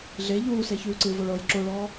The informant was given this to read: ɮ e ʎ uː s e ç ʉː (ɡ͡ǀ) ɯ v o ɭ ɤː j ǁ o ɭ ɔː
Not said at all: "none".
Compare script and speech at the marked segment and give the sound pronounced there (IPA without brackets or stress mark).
ǀ